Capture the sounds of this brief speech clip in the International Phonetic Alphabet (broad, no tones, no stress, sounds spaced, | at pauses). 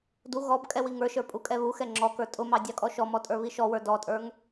d u ɣ ɔ b kʼ ɛ w i ŋ ə˞ ʃ ə˞ pʼ u kʼ ɛ β u x ɛ ŋ͡ǁ ɔ k ə˞ tʼ ʊ m ɑ dʲ ɑ kʼ ɔ ʃ ɔ m ɔ tʼ ə˞ β i ʃ ɔ w ə˞ d ɔ tʼ ə˞ ŋ